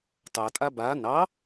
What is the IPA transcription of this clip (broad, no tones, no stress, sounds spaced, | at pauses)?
t ɑ tʼ a b a n ɑ